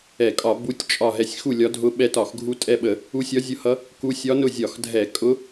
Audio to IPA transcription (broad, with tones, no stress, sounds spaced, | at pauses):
ɛ˧˩˧ kʼ ɒ˧˩˧ b u˧˥ tʲ t͡ʃʼ ɒ˦˨ ɦ ɛ˦˨ sʲ x u˦˨ lʲ ɒ˧˥ dʱ ʊ˧˥ ɓ ɛ˧˥ t ɒ˧˩˧ x ɡʱ u˧˥ tʼ ɛ˦˨ ɓ ə˧˩˧ | u˧˥ sʲ ɒ˧˥ zʲ ʊ˧˥ h ʌ˧˥ | k u˧˥ sʲ ɒ˧˥ n ʊ˦˨ zʲ ɒ˧˩˧ x dʱ ɛ˧˩˧ kʼ ʊ˧˥